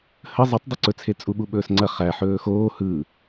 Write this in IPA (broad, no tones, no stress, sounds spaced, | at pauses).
h ə zˤ ɯ tˤ dˤ ɐ ǀ ɵ t͡sʰ e t͡sʼ u ɓ u ɓ ɵː s ŋ͡ǀ ɐ χ æ ħ ɵː x oː h ɯ